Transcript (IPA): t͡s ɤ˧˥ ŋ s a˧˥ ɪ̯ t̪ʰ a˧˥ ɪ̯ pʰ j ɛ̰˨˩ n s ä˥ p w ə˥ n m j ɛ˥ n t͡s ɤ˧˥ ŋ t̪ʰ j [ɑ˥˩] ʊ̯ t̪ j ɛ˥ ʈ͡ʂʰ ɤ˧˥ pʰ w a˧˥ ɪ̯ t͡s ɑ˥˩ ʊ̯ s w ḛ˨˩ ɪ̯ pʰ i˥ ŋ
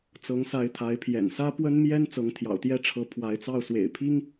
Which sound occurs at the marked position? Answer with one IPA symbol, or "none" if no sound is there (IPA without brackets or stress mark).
ɑ̰˨˩